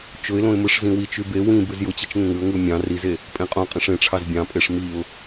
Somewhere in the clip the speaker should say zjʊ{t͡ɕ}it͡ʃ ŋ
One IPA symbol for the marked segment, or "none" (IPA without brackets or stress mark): t͡ɕ